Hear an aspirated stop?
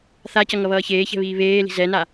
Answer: no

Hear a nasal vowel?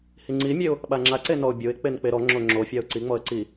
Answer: no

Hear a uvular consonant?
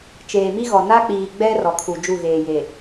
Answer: no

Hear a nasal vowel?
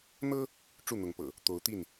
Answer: no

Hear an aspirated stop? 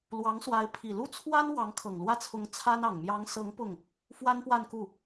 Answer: yes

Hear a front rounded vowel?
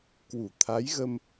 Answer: no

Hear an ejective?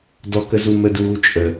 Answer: yes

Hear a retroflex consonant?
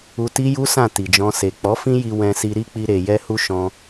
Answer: no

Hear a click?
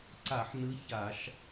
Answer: yes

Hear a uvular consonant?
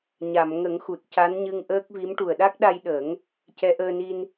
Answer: no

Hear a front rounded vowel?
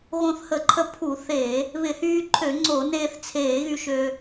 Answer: yes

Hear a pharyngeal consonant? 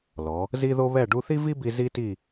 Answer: no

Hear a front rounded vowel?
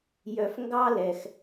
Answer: yes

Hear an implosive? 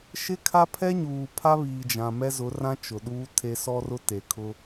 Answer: yes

